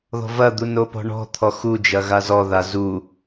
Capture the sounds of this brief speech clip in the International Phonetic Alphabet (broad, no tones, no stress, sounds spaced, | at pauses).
ð ɔ̤ v ɐ d̪ u n o p ɔ̤ ɳ ɔ̤ t̪ʰ ɔ x u d͡ʒ ɐ ɣ a z ɔ ð a z u